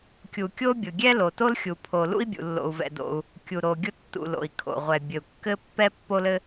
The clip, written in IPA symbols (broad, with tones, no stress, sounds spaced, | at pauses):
kʲ u˩ kʲ o˥ bʲ ʊ˩ ɡʲ ɛ˥ l o˩ t o˥ l xʲ u˩ pʰ o˩ l ṵ˥ i̯ bʲ ṵ˩ lː o̰˩ u̯ v ɛ̰˩ d o̰˩ u̯ | kʲ u˩ ɾ o˩ ɡʲ ʊ˥ tː ṵ˩ l o̰˩ i̯ kʰ o̰˩ ʁʷ ɛ˩ bʲ ɘ˩ u̯ kː ɘ˥ pː ɛ˥ pː o˥ l ɘ˥